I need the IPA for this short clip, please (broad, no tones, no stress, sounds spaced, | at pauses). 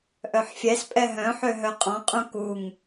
ʔ œ ħ fʲ ɛ s pʼ ɛ ɦ œ̃ ħ ø ɦ œ qʼ ɔ̃ qʼ ũ k u ŋ